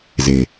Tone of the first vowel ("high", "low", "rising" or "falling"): low